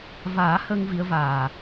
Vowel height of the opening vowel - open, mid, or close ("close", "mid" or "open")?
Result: open